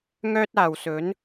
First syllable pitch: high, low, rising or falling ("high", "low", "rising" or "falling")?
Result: high